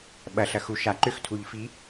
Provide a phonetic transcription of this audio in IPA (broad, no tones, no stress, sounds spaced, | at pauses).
ɓ ɐ ɬ ɐ x u ʃ a ǃ ʏ x tʰ u ʎ f i